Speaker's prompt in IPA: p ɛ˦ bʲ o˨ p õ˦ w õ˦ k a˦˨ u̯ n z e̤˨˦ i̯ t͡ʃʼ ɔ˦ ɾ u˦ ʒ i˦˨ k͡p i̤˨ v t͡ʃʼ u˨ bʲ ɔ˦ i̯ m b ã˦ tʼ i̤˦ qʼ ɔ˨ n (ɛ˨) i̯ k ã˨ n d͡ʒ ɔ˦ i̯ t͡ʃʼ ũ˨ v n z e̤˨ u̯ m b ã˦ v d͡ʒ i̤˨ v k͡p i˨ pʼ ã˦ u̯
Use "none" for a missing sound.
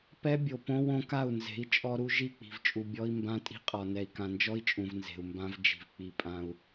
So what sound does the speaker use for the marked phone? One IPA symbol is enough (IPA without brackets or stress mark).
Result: ɛ˨